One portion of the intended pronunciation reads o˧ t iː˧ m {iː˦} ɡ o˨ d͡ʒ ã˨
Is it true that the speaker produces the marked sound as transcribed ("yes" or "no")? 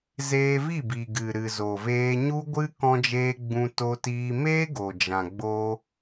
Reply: no